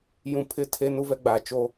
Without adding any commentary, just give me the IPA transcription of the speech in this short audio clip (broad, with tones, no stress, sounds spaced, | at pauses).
j ũ˨ pʰ ɪ˦˨ tʰ e˦ n u˦ v ɛ˦ ɡ͡b aː˨ t͡ʃ o˦